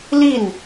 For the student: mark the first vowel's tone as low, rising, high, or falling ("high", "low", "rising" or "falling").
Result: falling